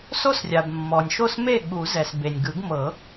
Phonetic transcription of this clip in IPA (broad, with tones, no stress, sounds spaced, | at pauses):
s o˥˩ s rʲ a˩ b mː ɔ˩ nʲ ʃ o˥˩ s m e˥˩ ɠ u˨˩˦ z ɛ˩ s b e˩ nʲ ɡ ɯ˨˩˦ ɡ m ɤ˨˩˦